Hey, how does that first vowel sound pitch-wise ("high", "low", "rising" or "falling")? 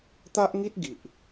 high